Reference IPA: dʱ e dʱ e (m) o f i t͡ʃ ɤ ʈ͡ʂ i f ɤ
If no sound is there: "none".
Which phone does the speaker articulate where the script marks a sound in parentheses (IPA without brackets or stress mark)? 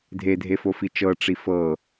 f